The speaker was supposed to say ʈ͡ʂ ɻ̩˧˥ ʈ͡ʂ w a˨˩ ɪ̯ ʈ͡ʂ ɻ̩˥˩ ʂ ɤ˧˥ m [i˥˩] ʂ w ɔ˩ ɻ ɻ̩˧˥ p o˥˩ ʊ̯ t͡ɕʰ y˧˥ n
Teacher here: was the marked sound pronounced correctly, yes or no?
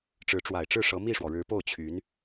yes